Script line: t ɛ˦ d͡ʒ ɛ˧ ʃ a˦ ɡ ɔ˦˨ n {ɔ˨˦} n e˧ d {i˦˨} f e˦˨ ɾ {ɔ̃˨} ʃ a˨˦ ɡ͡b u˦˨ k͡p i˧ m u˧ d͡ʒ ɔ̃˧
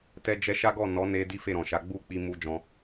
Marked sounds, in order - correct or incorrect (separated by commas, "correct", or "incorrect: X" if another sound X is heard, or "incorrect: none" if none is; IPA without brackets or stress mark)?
correct, incorrect: i˦, correct